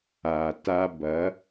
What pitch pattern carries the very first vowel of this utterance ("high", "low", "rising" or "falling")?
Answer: low